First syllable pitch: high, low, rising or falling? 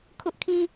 high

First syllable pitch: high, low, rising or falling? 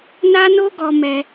high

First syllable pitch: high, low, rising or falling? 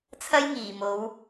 high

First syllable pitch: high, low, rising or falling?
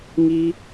high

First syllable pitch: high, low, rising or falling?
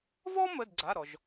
high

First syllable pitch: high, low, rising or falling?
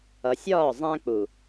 low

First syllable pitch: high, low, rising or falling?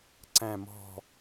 falling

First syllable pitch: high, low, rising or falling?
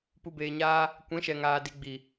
low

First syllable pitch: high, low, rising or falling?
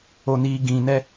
low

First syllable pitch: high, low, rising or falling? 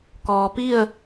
low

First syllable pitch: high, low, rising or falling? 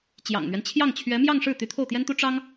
low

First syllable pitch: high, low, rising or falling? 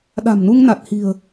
low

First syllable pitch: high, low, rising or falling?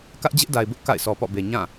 high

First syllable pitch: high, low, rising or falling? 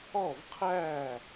falling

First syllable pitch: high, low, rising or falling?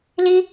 high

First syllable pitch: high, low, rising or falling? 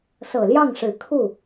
low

